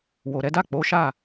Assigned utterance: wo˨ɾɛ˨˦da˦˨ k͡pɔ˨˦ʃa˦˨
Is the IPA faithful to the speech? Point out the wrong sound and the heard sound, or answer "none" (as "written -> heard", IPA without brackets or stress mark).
ɔ˨˦ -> o˨˦